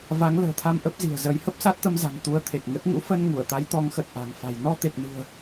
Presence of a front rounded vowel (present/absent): absent